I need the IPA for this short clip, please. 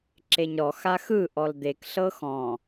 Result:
ǁeɲɾɔ xaxɯ ʔɔld̪ek ɬɤxɔ̃

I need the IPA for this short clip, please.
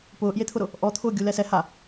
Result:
pʊːʔjet̪ʰʊɾʊ | ʔɔt̪ʰʊː ɡʲulɛsɛ ha

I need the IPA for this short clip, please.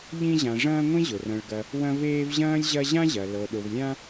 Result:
ʎĩ˦ʑã˨ʐɐ̃ː˦ ŋʷĩ˥ʑʊ˩rɐ̃˨ɭɡɐ˨ | wɐ̃˦veː˦vʑɐ̃ː˥lʲ ʑɐ˦ʑã˥ʑɐ˩ lɤ˩ɗʊ˩v lʲã˦

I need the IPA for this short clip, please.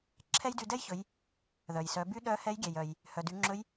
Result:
ǁʰɛ˥jdy˧dɛ˥jçɵ˩˧j | ðœ˩jsœ˩˧by˥ ɗœ˧˥hɛ˧˥j ɡʲɛ˩jœ˩j | hœ˩dy˩˧ŋ͡ǁɵ˧˥j

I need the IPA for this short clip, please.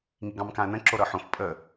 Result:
ŋiɡɑ̃mkãɐ̯nə̃ ǁoɾɤħõf pʼə

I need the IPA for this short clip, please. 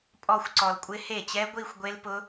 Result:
pʼɔ˥˧xʷ ǀɔ˨lkʷʼɪ˦˥he˥˩ t͡ɕɛ˦˥ɡʷi˥˧xʷ ɡʷe˦˥lpʊ˦˥

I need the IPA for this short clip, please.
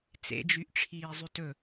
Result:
t͡sḛd͡ʒyʔʈ͡ʂʰiː zˤytɵ

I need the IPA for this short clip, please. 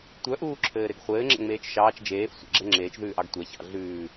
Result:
tʷœʔuːǁʰɘː ɾeɡχʷɘːŋ͡ǁɛ̰ ŋ͡meːt͡ʃʃɑːt͡ʃ d͡ʒeːf sʷɛ̰ɡ͡ǁɛ ŋ͡ǁeːt͡ʃðʉːʔɑɡ tʷɛçɑ̰ ɮʉː

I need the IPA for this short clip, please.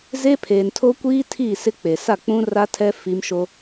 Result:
ze˦pʰeː˨ntʰo˦ kʷiː˦ tʰi˦˨sɪ˦ k͡pe˨ sa˦˨k͡pũ˦ra˦tʰɛ˦ fi˦m ʃo˦

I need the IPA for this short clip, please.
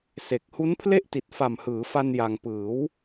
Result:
se˨˩k̚ hu˦˥npʰle˥˩ʔti˨˩t̚ fa˨˩mhɯː˩˦fa˧n ja˧ŋ pɯː˩˦w

